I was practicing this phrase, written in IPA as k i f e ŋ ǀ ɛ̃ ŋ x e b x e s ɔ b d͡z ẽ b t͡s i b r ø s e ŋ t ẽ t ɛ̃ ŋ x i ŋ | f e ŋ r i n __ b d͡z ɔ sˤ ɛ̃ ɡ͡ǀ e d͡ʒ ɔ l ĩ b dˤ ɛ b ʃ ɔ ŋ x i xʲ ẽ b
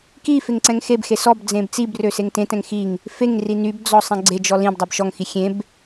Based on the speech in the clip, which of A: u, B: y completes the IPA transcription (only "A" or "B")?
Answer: B